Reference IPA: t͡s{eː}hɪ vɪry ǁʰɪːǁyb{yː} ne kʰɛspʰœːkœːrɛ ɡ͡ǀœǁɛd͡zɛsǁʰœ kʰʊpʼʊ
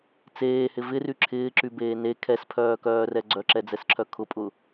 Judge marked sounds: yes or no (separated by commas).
yes, no